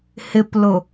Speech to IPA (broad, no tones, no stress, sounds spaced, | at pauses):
h ɪ p l ʊ